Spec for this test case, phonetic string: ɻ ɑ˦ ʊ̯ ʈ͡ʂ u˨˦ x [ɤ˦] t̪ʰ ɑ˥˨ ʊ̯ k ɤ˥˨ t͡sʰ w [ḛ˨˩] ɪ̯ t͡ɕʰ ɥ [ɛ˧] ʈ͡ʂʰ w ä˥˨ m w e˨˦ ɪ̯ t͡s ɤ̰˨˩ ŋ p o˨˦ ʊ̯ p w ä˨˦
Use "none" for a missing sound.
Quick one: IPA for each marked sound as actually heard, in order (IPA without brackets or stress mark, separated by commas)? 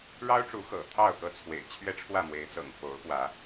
ɤ̰˨˩, ḛ˨˩, ɛ˦